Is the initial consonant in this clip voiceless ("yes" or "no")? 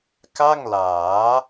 yes